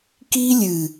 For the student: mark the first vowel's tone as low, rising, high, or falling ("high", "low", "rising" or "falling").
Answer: high